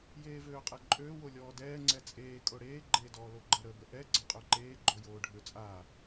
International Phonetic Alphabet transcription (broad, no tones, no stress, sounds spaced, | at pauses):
j eː v øː qʼ e ǃʼ øː w o lʲ ɔː d ɛː ŋ͡ǀ ɛ t͡sʼ eː kʼ o ɽ eː ɡ͡ǃ eː d ɔː l o ɡ͡ǃ ə ɾ əː b ə ʔ ɛ ɡ͡ǀ ə qʼ ø ǃ eː ɡ͡ǃ o j oː ɖʱ ø t͡sʼ a